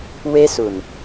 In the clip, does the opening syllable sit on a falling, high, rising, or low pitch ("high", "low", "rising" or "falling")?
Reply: high